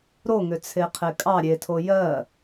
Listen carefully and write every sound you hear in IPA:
ɾoŋʏt͡sʰeqʰe kʼɑ ɾʲetʰo jɜ

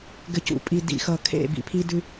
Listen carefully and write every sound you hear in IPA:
ɡɘ˨cṵ˨ pʼi˨ dḭ˨xʌ˨kʰḛ˦˨ bḭ˨pʰi˦dʉ˦

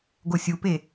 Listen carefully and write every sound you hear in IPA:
ɡosʲupe

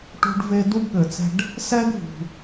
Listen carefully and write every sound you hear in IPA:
ʈṳ˧ɖve˧ du˥ɡɠɘ˩t͡sɛ̤˧ɖ | sɛ˥ɡvṳ˩

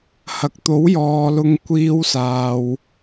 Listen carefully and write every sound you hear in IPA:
hɐ˨k̚t̪o˨˥wjɔː˨ lʊ˧ŋkʷiː˧wsaː˨w

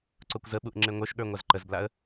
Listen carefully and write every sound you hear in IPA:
ǀokʷzəɓuʔ ŋ͡ǁeŋʷə˞ʃɠə˞ ŋʷazǃəzblaə̯

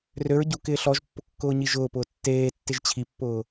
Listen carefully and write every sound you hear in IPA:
røɹ ɟukɪː ɬɔʒpːʊ kːʊːɲiʒʊːpʊː tːeːtːɪʒ t͡ɕʰipːʊː

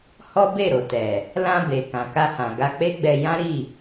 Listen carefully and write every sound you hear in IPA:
hɔ˦be˦˨ɾo˨tɛ˨ | lã˧be˨ kã˨ka˧hã˨ɡa˧ k͡pe˦ɡ͡bɛ˧jã˦ ɾi˦˨

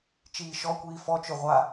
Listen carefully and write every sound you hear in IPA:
t͡ʃiːʃɔkʷiː fɔt͡ʃʊ ʁʷa

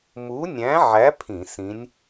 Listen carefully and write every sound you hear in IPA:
mu˨˥nʲæ̃˨˥ʕæ˨˥ pʰĩ˧˩˧ sĩ˨˥nʲ

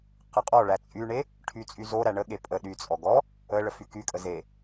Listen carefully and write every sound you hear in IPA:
qəqʼɔɭæ t͡sʼyɳe | ʈʰyt͡sʼyzoɾæ ɳəɠe pʼə ɗyt͡sʼɔ ɡɔ | əɭə fykykʼə ze

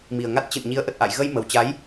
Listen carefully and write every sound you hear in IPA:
mi˨˩ə̯ŋa˦˥t̚ t͡ɕɨ̰˧˨nɲi˨˦ə̯ʔə˨˩t̚ ʔa̰˧˨j ɣə˧jmə˨˩wt͡ɕa˨˦j

